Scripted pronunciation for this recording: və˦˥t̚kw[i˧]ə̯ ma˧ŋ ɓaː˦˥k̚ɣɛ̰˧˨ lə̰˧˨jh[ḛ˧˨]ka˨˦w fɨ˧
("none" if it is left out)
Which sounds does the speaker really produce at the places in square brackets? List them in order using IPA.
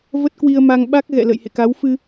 i˧, ḛ˧˨

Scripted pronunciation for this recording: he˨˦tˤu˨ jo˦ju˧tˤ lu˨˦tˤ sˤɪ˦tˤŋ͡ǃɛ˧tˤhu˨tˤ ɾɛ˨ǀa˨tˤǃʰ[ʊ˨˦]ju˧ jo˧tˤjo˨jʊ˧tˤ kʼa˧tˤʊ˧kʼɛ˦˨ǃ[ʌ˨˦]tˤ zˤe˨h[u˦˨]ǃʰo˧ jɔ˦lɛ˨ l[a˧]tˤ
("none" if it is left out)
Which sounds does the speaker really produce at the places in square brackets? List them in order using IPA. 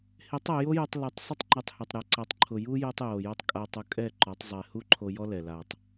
ʊ˨, ɔ˨˦, u˦, a˨

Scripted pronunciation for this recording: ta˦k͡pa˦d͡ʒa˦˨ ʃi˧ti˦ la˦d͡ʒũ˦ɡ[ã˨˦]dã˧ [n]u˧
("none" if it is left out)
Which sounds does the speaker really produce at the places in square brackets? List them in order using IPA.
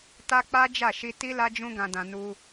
ã˧, n

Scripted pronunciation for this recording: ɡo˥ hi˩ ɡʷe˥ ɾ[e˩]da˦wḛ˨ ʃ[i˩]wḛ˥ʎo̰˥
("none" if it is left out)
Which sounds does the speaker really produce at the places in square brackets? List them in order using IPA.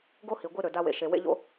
ø˩, e˩

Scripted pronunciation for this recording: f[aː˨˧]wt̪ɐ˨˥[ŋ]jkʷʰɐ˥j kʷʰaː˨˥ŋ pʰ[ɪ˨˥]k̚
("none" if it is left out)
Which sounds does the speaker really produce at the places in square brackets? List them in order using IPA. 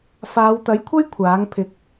aː˨˧, none, ɪ˨

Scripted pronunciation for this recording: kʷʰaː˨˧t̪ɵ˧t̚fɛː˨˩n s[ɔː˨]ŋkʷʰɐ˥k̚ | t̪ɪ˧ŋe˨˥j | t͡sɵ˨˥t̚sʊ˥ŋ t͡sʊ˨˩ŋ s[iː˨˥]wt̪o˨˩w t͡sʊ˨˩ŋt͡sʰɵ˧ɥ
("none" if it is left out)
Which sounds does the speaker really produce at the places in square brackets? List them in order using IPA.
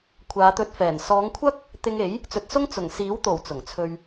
ɔː˨˧, iː˨˥

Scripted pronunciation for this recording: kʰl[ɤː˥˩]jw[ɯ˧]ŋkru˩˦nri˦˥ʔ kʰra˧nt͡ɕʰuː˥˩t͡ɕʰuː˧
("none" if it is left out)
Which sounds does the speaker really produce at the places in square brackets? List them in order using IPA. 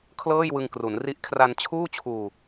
ɤː˥˩, ɯ˧

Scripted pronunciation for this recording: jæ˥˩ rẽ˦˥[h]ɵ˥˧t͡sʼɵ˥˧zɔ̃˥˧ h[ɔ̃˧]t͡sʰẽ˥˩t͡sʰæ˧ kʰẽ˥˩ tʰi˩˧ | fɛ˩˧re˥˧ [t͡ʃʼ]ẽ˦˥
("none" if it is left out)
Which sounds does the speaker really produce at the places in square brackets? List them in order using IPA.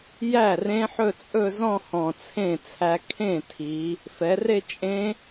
ħ, ɔ̃˨˩, t͡ʃʼ

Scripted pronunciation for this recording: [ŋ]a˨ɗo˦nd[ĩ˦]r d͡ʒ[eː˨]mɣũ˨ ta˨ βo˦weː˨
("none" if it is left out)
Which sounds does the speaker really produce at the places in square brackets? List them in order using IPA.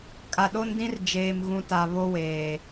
kʼ, ĩ˦, eː˨

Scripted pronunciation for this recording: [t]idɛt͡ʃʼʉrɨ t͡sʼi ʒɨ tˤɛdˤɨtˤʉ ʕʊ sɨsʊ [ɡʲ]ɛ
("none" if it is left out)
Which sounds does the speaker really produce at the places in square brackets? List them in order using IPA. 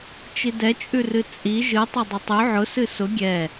t͡ʃ, ɡʲ

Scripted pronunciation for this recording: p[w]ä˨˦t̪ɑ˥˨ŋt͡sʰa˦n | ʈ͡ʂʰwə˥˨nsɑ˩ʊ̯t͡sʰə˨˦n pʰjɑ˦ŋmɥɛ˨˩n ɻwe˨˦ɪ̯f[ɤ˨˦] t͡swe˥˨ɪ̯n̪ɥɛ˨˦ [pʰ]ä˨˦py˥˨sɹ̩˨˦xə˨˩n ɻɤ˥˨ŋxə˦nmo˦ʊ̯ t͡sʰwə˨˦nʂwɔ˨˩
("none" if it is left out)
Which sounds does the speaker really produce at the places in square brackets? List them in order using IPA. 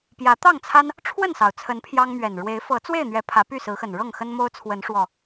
j, ɤ˨˦, pʰ

